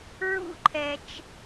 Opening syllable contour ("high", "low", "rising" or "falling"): high